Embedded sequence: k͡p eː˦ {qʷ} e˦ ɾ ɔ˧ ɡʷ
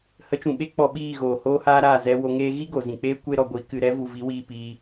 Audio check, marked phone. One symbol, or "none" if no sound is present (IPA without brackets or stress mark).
kʷ